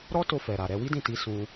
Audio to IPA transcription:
ɾɔ˦to˧fɛ˨ɾa˨ ɾɛ˧wi˦dĩ˦˨ti˧ sũ˧

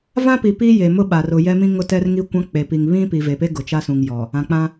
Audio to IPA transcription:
vã˦pi˨ pi˦je˨ mʊ˦ ɓa˨r ʊ˨jɛ˦mĩ˦ ŋʊ˦tɛ˦rŋi˦ kʷã˦k͡pe˨pi˨ŋ βĩ˦ pi˨ve˨pe˦ ɡʊ˨t͡ʃa˦sũ˨ŋ jɔ˨ | ã˨k͡pã˦

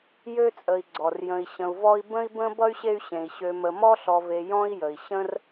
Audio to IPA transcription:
jø˥t͡sʼə˨i̯ ɡ͡ǀɔ˩rjə̃˨i̯ ɕə̃˨u̯vɔ˦i̯ bə̃˥i̯bə̃˥ bʌ˥y̯ɕe˦y̯ɕẽ˩i̯ɕø˨ mə˨mɔ˥ɬɔ˨ve˨ jɔ̃˥i̯jə˩i̯ ɕə̃˥r

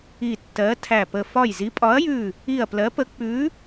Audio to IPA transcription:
i˧˩tːɜ˨˥tʰæ˧˩pə˧˩ fɒ˧˩jzi˨˥pʼɒ˨˥ɐ̯jʉ˧˩ | i˧˩ɐ̯plɜ˨˥pə˨˥ k͡pʉ˨˥

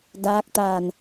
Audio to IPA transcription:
daː˧˥k̚t̪aː˧˩n

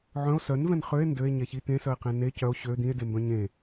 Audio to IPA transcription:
ʕœ̃o̯ sœnvɛ̃n χøe̯ ndøe̯ ɲɛçi t̪ẽsœe̯qẽ ne cœo̯ ɕø d̪ĩe̯dembœ̃ ɲẽ

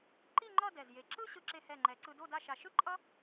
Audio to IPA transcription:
ǃi˥˧ŋ͡ǃʌ˥˧ dɛ˧˩zje˧˩ ǁɯ˥ ɕɯ˧ǁe˧hɛ˧˩ŋ͡ǃɛ˩˧ ǀɯ˧do˥˧ da˥˧ʃa˧ ʃɯ˥ ǃʼʌ˥

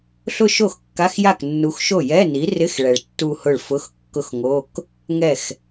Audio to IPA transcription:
ɬʊ˥˧ʃo˥˩x kːa˧˥˧xja˥˩knːu˨˥xʃo˥˩ jɛ˧˥˧ni˨˥rɪ˧˥˧x ɭɛ˨ɭtːu˥˧hʊ˥˩ɭ fʊ˧˥˧xkːʊ˥˩xŋo˧˥˧k | ŋɛ˥˩x

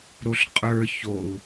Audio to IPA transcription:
ɾoɬqʼə˞ çou̯

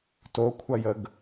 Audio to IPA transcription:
tokʷʰɐjəɡ

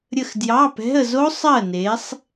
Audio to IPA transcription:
ɾʲə˦˨xdjɑ˧˥˧pɛ̤˧˥˧ə̯ zo˦˥sˤɜ˦˨ne˨˦sˤ

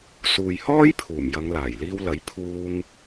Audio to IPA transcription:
suː˨jhɔː˥jpʰuː˨˩m jɐ˨˧ŋlaː˨˩jliː˧wlɐ˨˥j pʰuː˧ŋ

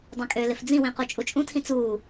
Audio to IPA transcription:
dˤɛ̃kʼølɪf d͡zĩwĩ qut͡ʃʼut͡ʃʼũtʰĩ t͡suː

